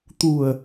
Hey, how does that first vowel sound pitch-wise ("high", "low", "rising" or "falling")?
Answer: low